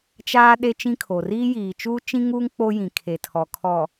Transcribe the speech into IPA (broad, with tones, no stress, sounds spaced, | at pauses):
t͡ʃ aː˦ ɗ e˦ t͡ʃ ĩ˦ kʰ oː˨ r iː˦ j iː˨ t͡ʃ uː˦ t͡ʃ ĩ˦ ŋ uː˦ ŋ k͡p o˦ j ĩ˨ kʰ e˨ tʰ ɔ˨ kʰ ɔ˨